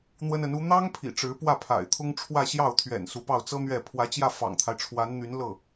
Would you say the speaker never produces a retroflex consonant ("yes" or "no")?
no